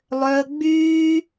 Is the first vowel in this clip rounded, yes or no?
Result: yes